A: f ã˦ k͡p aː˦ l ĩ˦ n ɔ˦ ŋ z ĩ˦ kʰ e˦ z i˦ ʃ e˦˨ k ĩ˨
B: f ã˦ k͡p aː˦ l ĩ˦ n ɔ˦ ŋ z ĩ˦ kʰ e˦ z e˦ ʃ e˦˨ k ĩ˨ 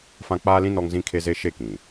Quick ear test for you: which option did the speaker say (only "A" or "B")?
B